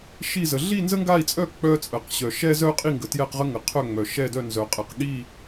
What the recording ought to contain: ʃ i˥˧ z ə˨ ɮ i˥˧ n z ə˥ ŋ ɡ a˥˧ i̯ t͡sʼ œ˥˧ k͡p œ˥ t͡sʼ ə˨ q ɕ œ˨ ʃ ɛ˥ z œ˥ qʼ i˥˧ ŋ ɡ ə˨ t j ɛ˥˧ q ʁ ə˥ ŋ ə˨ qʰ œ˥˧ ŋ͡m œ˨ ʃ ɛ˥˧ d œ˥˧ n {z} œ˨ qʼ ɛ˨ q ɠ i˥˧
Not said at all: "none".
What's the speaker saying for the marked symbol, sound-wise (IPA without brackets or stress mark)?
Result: z